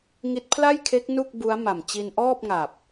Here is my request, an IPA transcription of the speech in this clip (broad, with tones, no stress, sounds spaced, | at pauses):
ŋ i˦˥ t̚ pʰ l a˥˩ j kʰ e˦˥ k̚ n u˥˩ k̚ b u˦˥ a̯ m a˨˩ m t͡ɕ i˧ n ʔ ɔː˥˩ p̚ ŋ a˨˩ p̚